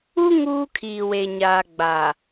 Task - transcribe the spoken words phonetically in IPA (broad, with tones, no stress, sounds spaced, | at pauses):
u˦ ŋ uː˦ kʰ iː˨ w e˨ ɲ aː˨ ɡ͡b a˨